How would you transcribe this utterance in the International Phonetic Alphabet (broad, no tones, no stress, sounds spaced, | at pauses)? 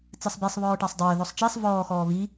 t͡s ɘ sˤ b i sˤ β ɔː ʈ a sˤ dˤ ɘː ð ɔ sˤ t͡ʃ e sˤ v ɔː x ɔː β i